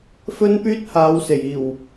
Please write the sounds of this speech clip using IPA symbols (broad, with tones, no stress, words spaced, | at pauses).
fɵ˥npyː˥t̚ haː˨˧wse˨˩j iː˨˩w